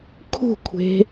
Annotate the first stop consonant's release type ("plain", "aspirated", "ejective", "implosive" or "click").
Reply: aspirated